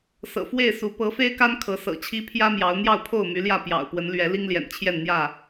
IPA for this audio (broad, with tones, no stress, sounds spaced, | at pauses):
s ɤ̰˨˩ f w e˥˨ ɪ̯ s u˨˦ p ɤ˨˦ f e˦ ɪ̯ k a˦ n kʰ ɤ˨˦ s ɤ̰˨˩ t͡ɕʰ i˦ pʰ j ä˦ m j ɑ˨˦ ʊ̯ n̪ j ɑ˥˨ ʊ̯ pʰ o˥˨ ʊ̯ m y˨˦ l j ä˥˨ p j ɑ̰˨˩ ʊ̯ p w ə˨˦ n l ɥ ɛ˨˦ l i˦ ŋ l j ɛ̰˨˩ n t͡ɕʰ j ɛ˥˨ n n̪ j ä˥˨